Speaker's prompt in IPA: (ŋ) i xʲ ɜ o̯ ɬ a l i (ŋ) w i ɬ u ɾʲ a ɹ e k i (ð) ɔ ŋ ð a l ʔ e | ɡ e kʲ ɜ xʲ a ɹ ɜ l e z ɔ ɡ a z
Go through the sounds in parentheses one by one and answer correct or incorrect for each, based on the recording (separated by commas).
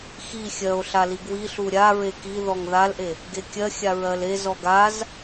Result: incorrect, incorrect, correct